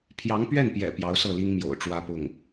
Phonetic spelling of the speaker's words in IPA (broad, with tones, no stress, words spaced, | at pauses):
pʰjɑ˧˥ŋpɥɛ˥˩npjɛ̰˨˩ pjɑ˧˥ʊ̯sɤ˥˩li˥ŋ mjo̰˨˩ʊ̯ʈ͡ʂwä˥pʊ˥˩ŋ